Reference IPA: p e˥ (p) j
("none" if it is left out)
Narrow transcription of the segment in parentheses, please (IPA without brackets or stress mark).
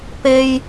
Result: none